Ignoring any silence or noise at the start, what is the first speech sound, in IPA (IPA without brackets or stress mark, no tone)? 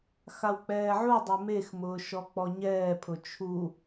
x